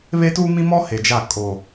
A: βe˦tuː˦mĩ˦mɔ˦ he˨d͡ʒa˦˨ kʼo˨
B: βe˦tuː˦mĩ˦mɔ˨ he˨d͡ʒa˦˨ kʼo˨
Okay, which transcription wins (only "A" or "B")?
A